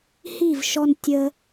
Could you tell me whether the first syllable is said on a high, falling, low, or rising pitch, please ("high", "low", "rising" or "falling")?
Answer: falling